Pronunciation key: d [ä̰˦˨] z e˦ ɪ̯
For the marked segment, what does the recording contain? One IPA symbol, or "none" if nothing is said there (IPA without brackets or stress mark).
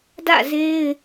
ä̰˦˨